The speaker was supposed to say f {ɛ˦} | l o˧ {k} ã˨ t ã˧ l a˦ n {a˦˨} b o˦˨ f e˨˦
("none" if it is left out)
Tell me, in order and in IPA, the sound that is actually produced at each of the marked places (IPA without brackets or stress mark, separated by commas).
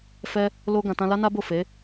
ɛ˦, ɡ, a˦